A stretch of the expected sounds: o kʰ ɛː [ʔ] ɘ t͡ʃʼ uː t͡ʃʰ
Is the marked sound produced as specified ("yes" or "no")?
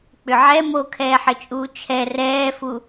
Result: no